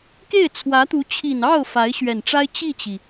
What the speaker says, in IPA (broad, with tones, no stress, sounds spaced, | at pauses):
k e˥˩ ɪ̯ t͡sʰ w ä˧˥ t̪ u˧˥ t͡ɕʰ i˨˩ n ɑ˥˩ ʊ̯ f a˧˥ ɪ̯ ɕ ɥ ɛ˨˩ n ʈ͡ʂ a˥ ɪ̯ t͡ɕ i˥˩ t͡ɕ i˩